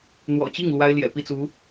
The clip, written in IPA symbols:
n̪ w ɔ̰˨˩ t͡ɕ i˥˩ ŋ l w a˥ ɪ̯ l j ɛ̰˨˩ p i˥˩ t͡s u˧˥

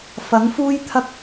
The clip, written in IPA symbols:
f ɐ˨˥ ŋ f uː˥ j t̪ʰ ɐ˧ k̚

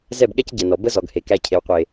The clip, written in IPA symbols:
z ɛ˦˨ b ɠ ɛ˦ c ɟ ɛ˨ n ɔ˨ b ə˦ z ɔ˨ ɡ h e˨ k æ˧ cʰ e˨ w qʷ e˨

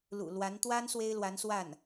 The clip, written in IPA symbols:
l ṵ˨˩ l w a˧˥ n t̪ w a˥ n s w e˥ ɪ̯ l w a˧˥ n s w a˥˩ n

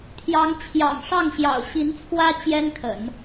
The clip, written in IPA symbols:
t̪ʰ j ɑ˧˥ ŋ t͡ɕʰ j ɑ̰˨˩ ŋ ʂ ɑ˥˩ ŋ ɕ j ɑ̰˨˩ ʊ̯ ɕ i˧˥ n t͡sʰ w ä˥ t͡ɕ j ɛ˥ n kʰ ə̰˨˩˦ n

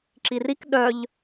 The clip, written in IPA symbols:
ǁ i r i k ɗ œ ʎ

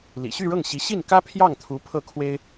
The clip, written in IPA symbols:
l ḭ˨˩ ɕ y˥˧ ɻ ɤ˥˩ ŋ ɕ i˧˥ ɕ i˥˩ n k ä˥ pʰ j ɑ˥˩ ŋ t̪ʰ u˧˥ pʰ ɤ˥˩ kʰ w e˥ ɪ̯

